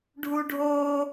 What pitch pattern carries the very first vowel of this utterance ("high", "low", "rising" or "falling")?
high